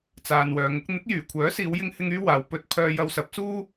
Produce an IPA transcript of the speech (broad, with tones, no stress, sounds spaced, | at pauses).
t͡s aː˨ n w œː˨˧ ŋ ʊ˥ k̚ n̪ ɪ˨˥ k̚ j yː˨˩ kʷʰ œː˨˥ s iː˨˧ w j ɪ˧ ŋ h ɪ˧ ŋ yː˥ w aː˨ w p ɵ˧ t̚ pʰ œː˧ j ɐ˧ w s ɐ˨˥ p̚ s uː˥